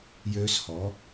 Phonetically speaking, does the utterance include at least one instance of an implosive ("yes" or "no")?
no